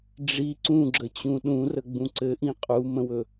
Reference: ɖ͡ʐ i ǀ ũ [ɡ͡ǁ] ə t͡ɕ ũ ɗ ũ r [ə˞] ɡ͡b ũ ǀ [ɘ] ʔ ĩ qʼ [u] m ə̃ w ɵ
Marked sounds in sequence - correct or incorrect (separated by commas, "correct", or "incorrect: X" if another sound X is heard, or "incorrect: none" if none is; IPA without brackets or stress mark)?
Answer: correct, incorrect: ə, correct, correct